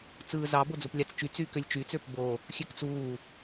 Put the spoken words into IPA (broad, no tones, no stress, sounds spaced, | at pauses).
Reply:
t͡s ɯː z ɑ b o d͡z o p lʲ ɑ t͡s t͡ʃ y t͡s yː k ø lʲ t͡ʃ yː t͡s ø p b o | xʲ ø k t͡s uː